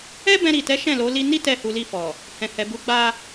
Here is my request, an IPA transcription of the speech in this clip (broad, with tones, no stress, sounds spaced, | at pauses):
ɛ˦ b ɛ̃˧ ɾ i˨ t ɛ˨˦ ʃ ɛ̃˦˨ l o˨˦ l i˧ n i˦ t ɛ˦˨ h u˧ l i˧ f ɔ˨ | h ɛ̃˨ h ɛ˨ b u˨˦ ɡ͡b a˧